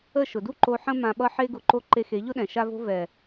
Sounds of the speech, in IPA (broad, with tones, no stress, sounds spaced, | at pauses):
ə˦˨ ʃ ʊ˨ d u˦ ǃ o˧ ħ ə̃˦ m ã˧ ɓ ʌ˦ ħ e˦ ɡ ʊ˧ ǃ o˦ ǃ e˧ x e˨˦ ʎ ʊ˦ ɗ ɛ̃˨ ʃ a˧ v o̤˧ v ɛ˨